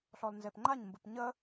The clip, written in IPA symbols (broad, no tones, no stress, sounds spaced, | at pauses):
ɬ ɔ l n z e p ŋ͡ǃ a ɲ m b ɯ p ɲ ə